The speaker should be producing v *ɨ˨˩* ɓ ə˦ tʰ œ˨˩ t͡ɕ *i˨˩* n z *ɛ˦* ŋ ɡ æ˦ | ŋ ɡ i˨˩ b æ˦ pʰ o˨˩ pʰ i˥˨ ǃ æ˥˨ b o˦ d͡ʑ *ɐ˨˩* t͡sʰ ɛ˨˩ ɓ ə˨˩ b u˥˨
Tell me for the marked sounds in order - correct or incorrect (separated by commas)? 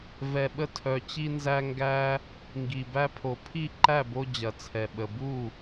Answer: incorrect, incorrect, incorrect, correct